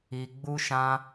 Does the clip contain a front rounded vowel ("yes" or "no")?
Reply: no